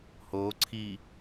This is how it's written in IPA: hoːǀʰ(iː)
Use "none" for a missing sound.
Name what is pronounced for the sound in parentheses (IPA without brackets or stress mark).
iː